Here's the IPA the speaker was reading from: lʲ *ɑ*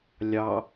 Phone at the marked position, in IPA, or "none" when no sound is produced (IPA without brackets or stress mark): ɑ